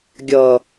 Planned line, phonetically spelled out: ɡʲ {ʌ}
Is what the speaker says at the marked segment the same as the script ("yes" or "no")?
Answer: yes